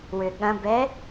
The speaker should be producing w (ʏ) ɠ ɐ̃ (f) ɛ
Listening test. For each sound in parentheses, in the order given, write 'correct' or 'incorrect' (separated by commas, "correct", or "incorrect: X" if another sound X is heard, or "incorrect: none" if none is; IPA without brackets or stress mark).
correct, incorrect: b